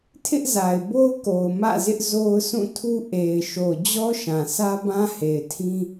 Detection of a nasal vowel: present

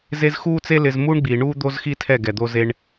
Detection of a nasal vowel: absent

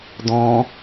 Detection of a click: absent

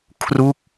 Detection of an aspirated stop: present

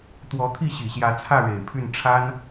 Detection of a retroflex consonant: present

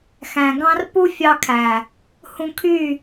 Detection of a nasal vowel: present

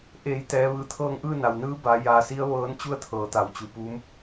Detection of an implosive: absent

